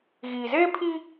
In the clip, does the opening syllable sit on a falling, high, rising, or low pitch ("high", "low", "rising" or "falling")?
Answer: low